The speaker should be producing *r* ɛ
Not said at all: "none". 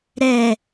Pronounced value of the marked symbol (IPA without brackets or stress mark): ɾ